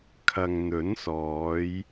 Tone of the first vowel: low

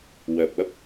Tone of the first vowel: low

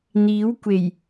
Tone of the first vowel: rising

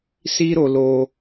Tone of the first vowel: high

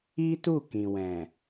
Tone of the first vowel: high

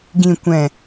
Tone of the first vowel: low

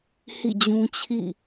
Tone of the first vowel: falling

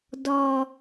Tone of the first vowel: low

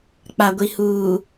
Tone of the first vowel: low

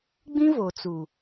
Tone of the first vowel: high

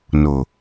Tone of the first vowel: low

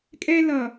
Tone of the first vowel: high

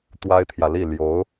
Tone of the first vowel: high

